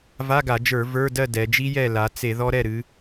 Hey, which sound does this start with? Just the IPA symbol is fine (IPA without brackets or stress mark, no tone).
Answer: v